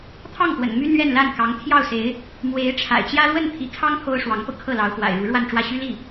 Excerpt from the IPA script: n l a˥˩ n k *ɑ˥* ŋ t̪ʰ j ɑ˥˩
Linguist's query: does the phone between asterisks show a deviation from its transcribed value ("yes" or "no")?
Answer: yes